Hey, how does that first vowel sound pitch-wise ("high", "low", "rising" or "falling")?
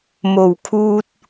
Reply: low